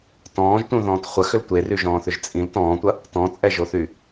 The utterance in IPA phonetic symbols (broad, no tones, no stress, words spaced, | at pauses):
tɔ̃ːʒtũðɔ̃ːt χʷɐxʏl tʷeryʒɔ̃ːθʏʒ t͡sʼĩl tɔ̃ːtʷɐ | tɔ̃t͡sʼɛʒoθy